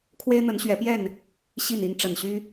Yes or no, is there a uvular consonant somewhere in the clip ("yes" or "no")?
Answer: no